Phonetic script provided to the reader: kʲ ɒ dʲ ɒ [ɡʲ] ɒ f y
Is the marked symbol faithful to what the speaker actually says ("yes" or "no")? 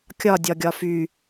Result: yes